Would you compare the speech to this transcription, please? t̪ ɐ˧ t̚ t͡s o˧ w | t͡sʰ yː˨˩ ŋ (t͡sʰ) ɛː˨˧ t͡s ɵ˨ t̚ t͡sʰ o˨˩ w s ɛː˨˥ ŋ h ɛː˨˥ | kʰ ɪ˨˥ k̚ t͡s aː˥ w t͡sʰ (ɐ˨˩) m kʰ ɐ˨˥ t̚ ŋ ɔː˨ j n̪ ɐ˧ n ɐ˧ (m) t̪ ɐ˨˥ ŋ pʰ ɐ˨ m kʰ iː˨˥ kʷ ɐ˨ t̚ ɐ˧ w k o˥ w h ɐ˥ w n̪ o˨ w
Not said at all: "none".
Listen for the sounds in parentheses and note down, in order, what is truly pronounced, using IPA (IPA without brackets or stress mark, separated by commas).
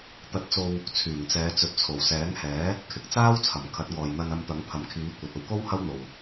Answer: t͡s, ɐ˨˩, m